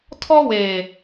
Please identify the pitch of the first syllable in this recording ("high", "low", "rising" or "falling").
high